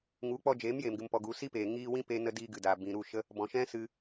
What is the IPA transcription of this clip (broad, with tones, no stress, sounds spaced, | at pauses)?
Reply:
ŋ u˨˦ k͡p ɔ˧ d͡ʒ eː˨˦ m j eː˨ m ɡ ɨ˨ m p ɔ˨ ɡ u˨ s i˦ p eː˨ ŋ iː˧ w ĩ˦ p e˧ n ə˧ d iː˧ ɡ ɨ˨ d aː˨ b ĩ˨ ɾ u˦˨ ʃ ə˦ | b ɔ̃˨ ʃ ɛ̃˦ s ɨ˧